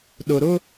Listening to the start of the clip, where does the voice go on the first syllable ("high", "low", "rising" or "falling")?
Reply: low